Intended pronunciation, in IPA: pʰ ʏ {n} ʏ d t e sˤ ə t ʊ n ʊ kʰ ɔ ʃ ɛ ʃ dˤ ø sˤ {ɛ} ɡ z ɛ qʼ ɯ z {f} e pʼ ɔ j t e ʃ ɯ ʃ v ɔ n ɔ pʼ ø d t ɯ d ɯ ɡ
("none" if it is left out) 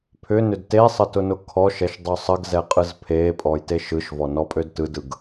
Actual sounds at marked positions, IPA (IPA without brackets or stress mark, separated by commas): n, ə, pʰ